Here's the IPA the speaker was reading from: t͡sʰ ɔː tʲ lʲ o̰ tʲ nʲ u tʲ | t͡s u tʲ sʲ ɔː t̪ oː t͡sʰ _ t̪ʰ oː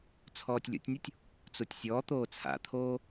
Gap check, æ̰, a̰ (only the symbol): a̰